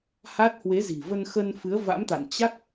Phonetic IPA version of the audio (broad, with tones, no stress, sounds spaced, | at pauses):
h a˦˥ t̚ h w e˨˦ z i̤˨˩ v ə˧ n x ə˧ n f ɨ˨˦ ə̯ v a̰˧˥ m t̪ a̰˧˨ n t͡ɕ a˦˥ k̚